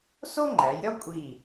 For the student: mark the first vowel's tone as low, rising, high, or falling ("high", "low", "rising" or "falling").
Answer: high